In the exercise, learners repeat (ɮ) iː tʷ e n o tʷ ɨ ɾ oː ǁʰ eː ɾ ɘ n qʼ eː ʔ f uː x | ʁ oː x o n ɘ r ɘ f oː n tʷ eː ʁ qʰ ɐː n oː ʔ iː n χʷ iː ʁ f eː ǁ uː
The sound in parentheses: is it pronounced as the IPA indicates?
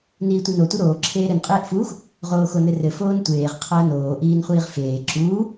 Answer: no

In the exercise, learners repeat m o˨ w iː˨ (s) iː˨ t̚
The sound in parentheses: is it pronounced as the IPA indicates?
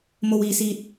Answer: yes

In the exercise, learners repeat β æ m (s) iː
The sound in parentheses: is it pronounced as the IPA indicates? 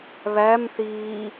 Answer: no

